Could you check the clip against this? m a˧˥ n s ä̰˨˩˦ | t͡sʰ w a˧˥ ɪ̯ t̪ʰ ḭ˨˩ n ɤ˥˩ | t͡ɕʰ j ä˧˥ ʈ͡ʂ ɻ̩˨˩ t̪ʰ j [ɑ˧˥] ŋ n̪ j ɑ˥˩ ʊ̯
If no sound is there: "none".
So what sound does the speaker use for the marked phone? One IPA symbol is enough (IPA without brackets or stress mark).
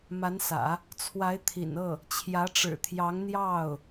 ɑ˧˥